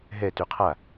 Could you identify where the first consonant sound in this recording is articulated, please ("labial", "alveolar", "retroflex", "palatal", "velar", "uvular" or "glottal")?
glottal